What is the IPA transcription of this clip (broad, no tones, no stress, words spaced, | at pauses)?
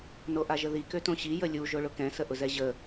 noʔaʒəði køtõɕi jəlʲu ʒoɭʊkɛ̃ səʔʊzɛʑə